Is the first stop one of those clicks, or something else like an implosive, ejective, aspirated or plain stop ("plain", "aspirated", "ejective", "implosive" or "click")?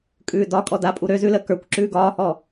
ejective